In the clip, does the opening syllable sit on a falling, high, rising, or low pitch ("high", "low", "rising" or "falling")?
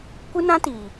high